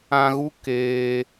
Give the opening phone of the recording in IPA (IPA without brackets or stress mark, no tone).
ã